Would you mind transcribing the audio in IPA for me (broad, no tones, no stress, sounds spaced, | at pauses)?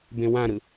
b ẽ w ã ɾ ɯ